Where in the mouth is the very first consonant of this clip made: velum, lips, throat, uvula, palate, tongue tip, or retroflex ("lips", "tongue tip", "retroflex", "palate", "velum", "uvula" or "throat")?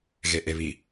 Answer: velum